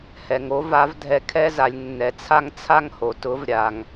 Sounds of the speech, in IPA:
h ɛ˩ ŋ o˥ v a˧˥ v dʱ ɛ˧ kʰ ɛ˥ z a˩˧ lʲ nː ɛ˩ t͡sʰ a˥ ŋ t͡sʰ a˥ ŋ h o˩ t ʊ˧˥ v ɾʲ a˩ ŋ

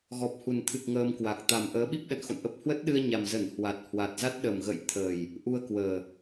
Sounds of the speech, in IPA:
ɣ ɔ˨˩ p̚ h u˨˩ n t̪ʰ ɨ˨˩ k̚ ŋ əː˧ m k w a˨˩ k̚ t̪ a˨˩ m ʔ əː˨˦ ɓ i˦˥ p̚ ɗ ə̰˧˨ n x o̰˧˨ n ʔ ə˦˥ p̚ h w ə˦˥ t̚ ɗ ɨ˧ ə̯ ɲ a˨˩ m z ə˧˩ n h w a˨˩ t̚ h w a˨˩ t̚ z a˦˥ t̚ ɗ ə˨˩ m ɣ ə̰˧˨ j t̪ʰ ə˨˩ j | ʔ u˧ ə̯ k w əː˨˩

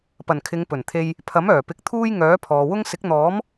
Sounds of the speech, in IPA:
p ɐ˨˩ n kʰ ɪ˨˧ ŋ p ɵ˨˩ n t̪ʰ e˧ j | pʰ ɐ˨˥ m œː˨˩ p ɪ˨˥ k̚ t̪ʰ uː˥ j ŋ œː˨˥ pʰ ɔː˨ w ʊ˥ ŋ s ɪ˨˥ k̚ n̪ ɔː˨˥ m

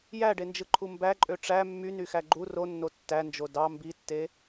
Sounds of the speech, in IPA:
j æ ɖ e n d͡ʒ ɯ ǃʰ u m b æ ǃʼ ø ʈ͡ʂ æ mː y n y x æ ɡ͡ǃ u r o nː o tː æ n d͡ʒ o d ɑ m b i tː e

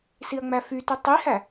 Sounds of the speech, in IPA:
s i ɐ̯ ŋ͡m æ f y t u tˤ i h æ

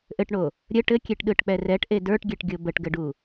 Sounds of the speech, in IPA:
ʔ ɘ ʈ ɳ o | ɾʲ ə ʈ ɘ kʲ e ʈ ɗ ɯ ʈ k͡p ɛ r ɛ ʈ ʔ e d ə˞ ʈ ɡʲ ɛ ʈ ɡʲ o b ə ʈ ɡ ɘ ɖ u

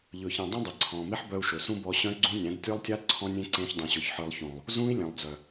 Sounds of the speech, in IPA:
ʎ ɵː˨ ç ẽ˨ dˤ ũ˦ dˤ e˨ ǀʰ ɔ̃ː˨ m e˦ ħ b œ˧ u̯ ʃ ɵ˨ s ũ˦ b ɔ˧ ɕ œ̃˦ y̯ ɡ͡ǀ ũ˦ nʲ æ̃˨˦ d tʲ ə˞˦ lˠ tʲ a˦ d ǀʰ ɔ̃˧ nʲ ẽ˦ ǀ ẽː˧ ç dˤ ũ˨ ɕ ɵ˨ ç ħ ə˞˧ lˠ ç ũː˨ lˠ | z ũː˦ i̯ lʲ ẽ˨ lˠ d͡z œ˨

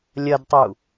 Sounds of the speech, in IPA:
lʲ ɐ d tˤ u

